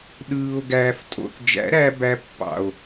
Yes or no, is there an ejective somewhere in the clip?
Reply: yes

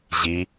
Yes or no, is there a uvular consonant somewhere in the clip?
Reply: no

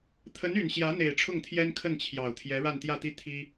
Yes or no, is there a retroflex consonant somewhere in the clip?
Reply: yes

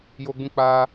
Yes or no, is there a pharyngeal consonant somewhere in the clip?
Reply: no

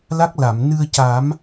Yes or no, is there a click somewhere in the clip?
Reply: no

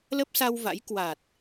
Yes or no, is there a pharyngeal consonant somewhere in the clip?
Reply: no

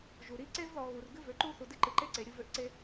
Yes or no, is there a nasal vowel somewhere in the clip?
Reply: no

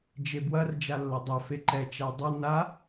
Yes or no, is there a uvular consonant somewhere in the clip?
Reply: no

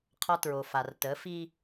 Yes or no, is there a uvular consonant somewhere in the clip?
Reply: yes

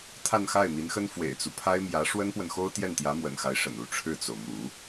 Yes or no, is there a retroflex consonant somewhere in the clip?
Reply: yes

